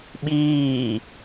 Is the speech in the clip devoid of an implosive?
no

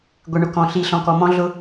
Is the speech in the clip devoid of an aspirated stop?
yes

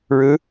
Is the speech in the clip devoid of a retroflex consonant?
no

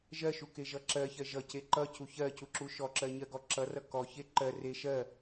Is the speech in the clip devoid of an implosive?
yes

